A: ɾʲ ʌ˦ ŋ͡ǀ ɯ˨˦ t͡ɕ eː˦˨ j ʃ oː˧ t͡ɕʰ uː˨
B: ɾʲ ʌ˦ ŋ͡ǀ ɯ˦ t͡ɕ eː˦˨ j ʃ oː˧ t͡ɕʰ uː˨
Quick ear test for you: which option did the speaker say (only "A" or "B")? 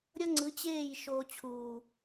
A